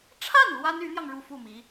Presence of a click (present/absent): absent